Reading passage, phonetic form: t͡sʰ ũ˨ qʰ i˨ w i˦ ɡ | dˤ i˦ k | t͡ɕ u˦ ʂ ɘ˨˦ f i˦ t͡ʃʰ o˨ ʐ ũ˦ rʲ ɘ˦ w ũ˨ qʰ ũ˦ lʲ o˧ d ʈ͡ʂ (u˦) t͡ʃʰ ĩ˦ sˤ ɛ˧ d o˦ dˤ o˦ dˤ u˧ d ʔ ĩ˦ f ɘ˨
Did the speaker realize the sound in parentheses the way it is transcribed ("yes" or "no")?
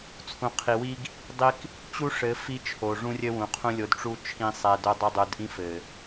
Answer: yes